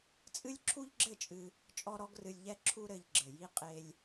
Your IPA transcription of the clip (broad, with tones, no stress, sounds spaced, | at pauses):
t͡sʼ ɨ˦ lʲ ǁʰ u˦ ʎ ɡ͡ǁ ɘ˦˨ t͡ʃʼ ɨ˧ | t͡ʃʼ ɔ˦ ɾ ɔ˦ ɡ r ɨ˧ lʲ ʎ ɛ˦ ǁʰ u˦ ɾ ɘ˧ ʎ ɡ͡ǁ ɘ˨ j i˦ qʼ e˧ lʲ